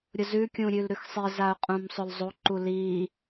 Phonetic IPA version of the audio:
ɾʲʊzʉ kʲũɾʲʉlɾʉxsˤi zaʊ̯qʼũmsˤʊlzˤo ǃuli

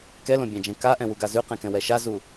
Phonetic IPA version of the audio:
kɛlõbʲãd͡ʒɛ̃ kaʔɛ̃wuɡa zʉqɛ̃kɛ̃wɛ ʃazu

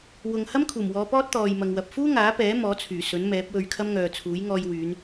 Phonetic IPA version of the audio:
wʊ˨ŋhɐ˥mkʰuː˨˩mwɔː˨˧ pɔː˥t̚t̪ɔː˨jmɐ˨ŋwɐ˨p̚ fuː˥ŋaː˨˥pɛː˨˥ mɔː˨˥t͡sʰyː˨˩sɵ˨˥n mɛː˨˥p̚wɵ˧ɥkʰɐ˥m ŋœː˨t͡sʰuː˨˥j ŋɔː˧jwyː˨˧n

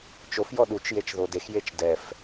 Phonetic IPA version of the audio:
t͡ʃofjɔ ɗut͡ʃjet͡ʃðo dexjet͡ʃ dɛf

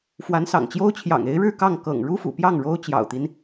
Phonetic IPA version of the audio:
fwa˧˥nsɑ̰˨˩ŋt͡ɕjo˥ʊ̯t͡ɕʰjɑ̰˨˩ŋ e˧˥ɪ̯ɻɻ̩˥˧kɑ˥˩ŋ kɤ̰˨˩ŋ ɻu˥fṵ˨˩pjɑ˥˩ŋ ɻo˥ʊ̯t͡ɕjɑ̰˨˩ʊ̯t̪i˦n

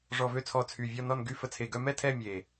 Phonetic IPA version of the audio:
ʐɔ˨˩vø˥˧t͡sʰɔ˨˩ t͡sʰy˨˩vʲɔ˥˧nɔ˥˧nɡy˥˧ fə˨˩t͡sʰe˨˩ɡœ˥˧mɛ˥˧ tʰɛ˥˧mʲe˨˩

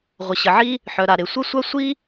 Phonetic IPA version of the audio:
ʁʷə˩ ɕə˩ʕi˥ | ħœ˩ɾa˩ɾe˩ sʷɛ˥sʷa˥ sʷi˥

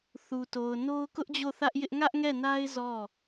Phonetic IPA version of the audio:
θu˨to˨ʊ̯ no˦ʊ̯kʊ˦ʔd͡ʑo˦˨ θä˦ʔjɪ˦ʔ ŋä˦ʔŋɛ˦˨na˦ɪ̯ zɔ˦˨

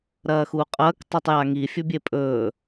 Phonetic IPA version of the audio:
ɾɐːxuːqʼɐːk tˤutˤjaŋi fʲɵbʲepʼɵː

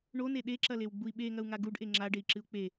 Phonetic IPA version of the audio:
ɳone ɗeǁɐlewɡ͡bui̯ ɓeŋɐu̯ŋa ɡuɖʔe ŋ͡ǁaɖei̯ǁɨu̯ k͡pe

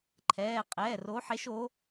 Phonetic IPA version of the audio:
ǃʰɛː˩˧˩ qʼɛː˩˧˩ro˨˦ħe˨˦ʃo˨˦

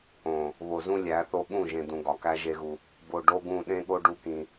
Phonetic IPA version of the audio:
õ˨ | βo˨zũ˦lʲæ˨˦θo˦ ɠũ˦˨ʒẽ˨d̪ũ˨ ɡɒ˨kæ˦ʒe˦ɣu˦ | bo˨ɖo˦ ɡũ˦˨ ɗẽ˦ɠo˦ɖu˦ kĩ˦

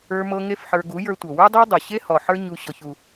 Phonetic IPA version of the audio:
ə˞˧mɤ˧ ŋe˦fħə˞˧ ɡu˨˦jə˞˧tʷɤ˨ wə˞˦dˤə˞˦dˤu˨ɕe˦ hɔ˨ħə˞˦ ɲu˧ ɕɔ˧çu˧

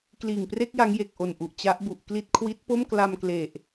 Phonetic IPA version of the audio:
kliː˨˩ŋpre˥˩k̚ ja˦˥ŋje˨˩k̚ʔo˨˩nʔu˨˩ʔ t͡ɕa˦˥ʔbu˨˩ʔkli˥˩t̚ kʰwi˦˥t̚po˥˩m kla˧mkle˨˩ʔ

